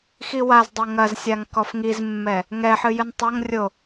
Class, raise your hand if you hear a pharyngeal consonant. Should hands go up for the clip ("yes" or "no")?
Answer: yes